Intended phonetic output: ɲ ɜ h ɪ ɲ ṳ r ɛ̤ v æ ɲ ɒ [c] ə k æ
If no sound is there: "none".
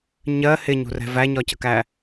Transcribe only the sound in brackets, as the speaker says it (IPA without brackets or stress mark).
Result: c